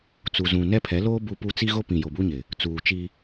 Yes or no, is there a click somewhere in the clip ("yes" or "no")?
no